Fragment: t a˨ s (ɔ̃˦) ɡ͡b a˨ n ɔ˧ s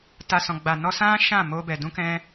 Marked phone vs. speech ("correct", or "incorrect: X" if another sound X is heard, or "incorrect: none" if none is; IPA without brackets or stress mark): incorrect: ɔ̃˨